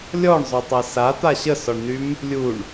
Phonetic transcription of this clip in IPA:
lʲɔɳzˤøtˤa sat̪a ɕəsɔɳnym | lʲuɳ

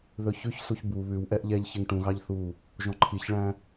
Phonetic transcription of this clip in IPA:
ðɵçʉçsuç bu βʉwʔɛʔ ʎɛʎçeŋ ʈũɣɑʎ θu | ʒɔ̃ǃʰiçɭæ̃

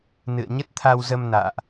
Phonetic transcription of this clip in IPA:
nɨ̰˧˨ə̯ɲə˦˥t̚t̪ʰa˧wzə˧m na̰ː˧˨ʔ

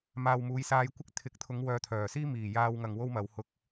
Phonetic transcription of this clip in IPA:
maː˨wmuː˨˧jsaː˧jkʷɪ˥k̚ t̪ʰɪ˨˥k̚t̪ʰʊ˨˧ŋwœː˨ t̪ʰœː˨˩siː˥ miː˨˩jaː˧wŋɐ˨ŋ wo˥wmɐ˨˧whʊ˧k̚

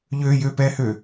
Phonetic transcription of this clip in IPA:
ʎøjøpɛhø

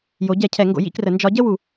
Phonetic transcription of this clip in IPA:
jo˨˥ ɟɛ˨˩˦cʰɛ˨˩˦ ŋɡo̰˨˩˦jḭ˥˧krə˨˩˦ nd͡ʒɒ˨˥ ɟə˥˧wu˨˩˦

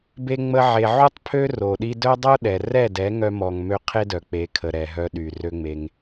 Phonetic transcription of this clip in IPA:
be˦ŋ͡mə˦ʕe˧ ʕu˦tˤpʰø˦ ro˨ɗi˧dœ˦ dˤo˦ɗɛ˨rɛ˦˨ dɛ˨˦ŋœ˧mɔ˨ŋ mø˦ qʰe˦dœ˨k͡pe˨˦ kʰə˨ɾɛ˨ɦœ˧ ɗy˨rø˦ŋ͡me˧ŋ

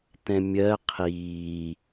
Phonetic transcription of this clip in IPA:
tɛ̃mʲɜ qʰiː

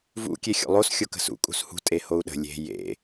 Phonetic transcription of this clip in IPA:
vṵ kʲexʲo̰lˠos xʲokə̤sṵ kʼṳshṳ tʼehou̯ɗə̤ lʲe̤ jḛ

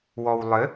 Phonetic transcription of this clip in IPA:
wɔwlˠɘ

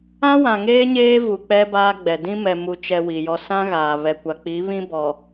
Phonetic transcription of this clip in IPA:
ã˦wã˨ŋeː˦ ɲeː˦vu˨ k͡pɛ˦baː˦ɡ͡bɛ˨ dĩ˦mɛ˨mu˨t͡ʃɛ˨ wi˨jɔ˦ sã˦ɣaː˨ βɛ˨kʷa˨k͡pi˨˦βĩ˦ bɔ˨

